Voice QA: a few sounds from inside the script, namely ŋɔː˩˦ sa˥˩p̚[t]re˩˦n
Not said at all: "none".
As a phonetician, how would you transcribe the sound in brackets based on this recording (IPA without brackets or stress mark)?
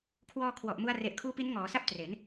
t